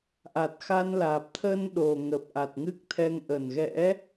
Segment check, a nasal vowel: absent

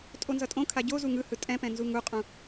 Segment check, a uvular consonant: present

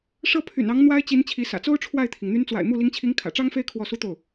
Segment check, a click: absent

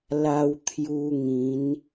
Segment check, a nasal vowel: present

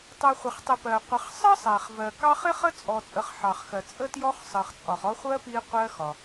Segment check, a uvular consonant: present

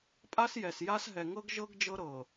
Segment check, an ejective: present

